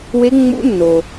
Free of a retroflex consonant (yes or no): yes